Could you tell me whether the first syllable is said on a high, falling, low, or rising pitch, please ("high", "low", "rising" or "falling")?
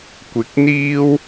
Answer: rising